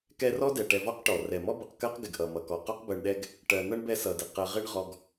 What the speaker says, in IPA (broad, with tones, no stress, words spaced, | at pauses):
kɛ˦rɔ˥dɛ˩ ʈɛ˨vɔ˦qʈɔ˩ rɛ˩mɔ˥bʌ˨q kɜ˥qɡɪ˩ɡʔʌ˩ mʌ˩kɔ˩ qɔ˥qbɜ˨ɳɗɛ˦ɡ | ʈɜ˨nʌ˥ɳbɛ˦ sʌ˩dɪ˩ qɜ˨ ʁɪ˦ɳʁɔ˨ɡ